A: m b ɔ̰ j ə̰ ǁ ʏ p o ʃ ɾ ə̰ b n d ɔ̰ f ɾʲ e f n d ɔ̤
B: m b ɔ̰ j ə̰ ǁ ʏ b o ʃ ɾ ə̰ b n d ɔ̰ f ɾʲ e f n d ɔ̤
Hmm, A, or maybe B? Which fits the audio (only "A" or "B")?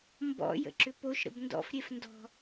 A